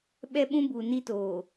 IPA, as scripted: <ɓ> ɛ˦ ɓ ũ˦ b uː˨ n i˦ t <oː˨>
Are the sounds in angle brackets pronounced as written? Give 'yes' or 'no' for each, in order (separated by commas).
yes, yes